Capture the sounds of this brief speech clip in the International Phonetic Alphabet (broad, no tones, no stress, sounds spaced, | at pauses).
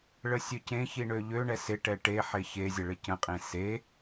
ɭ ə sʲ ø c ẽ ç i ɳ ø ʎ ø ɳ ɛ s ɪ ʈ ɛ ʈ e ħ e ç e zʲ ə ɭ ɪ c ə̃ qʼ ẽ s e